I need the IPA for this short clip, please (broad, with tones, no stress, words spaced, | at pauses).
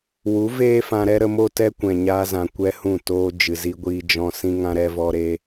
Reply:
wu˨˦veː˦fã˧ɾɛ˦ ɾə˧mo˦ tɛ˦kʷɛ̃˨ɲaː˧zã˨ kʷɛ˦hũ˦˨toː˦ d͡ʒɨ˨zi˧ɡʷiː˧ d͡ʒɔ̃˧sĩ˦ŋã˦ ɾɛ˦vɔ˦ɾe˦